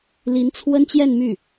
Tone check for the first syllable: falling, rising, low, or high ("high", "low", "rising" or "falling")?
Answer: rising